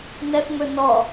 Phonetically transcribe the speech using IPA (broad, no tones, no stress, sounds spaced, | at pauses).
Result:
n ɛ f ŋ͡m ɵ n ɔ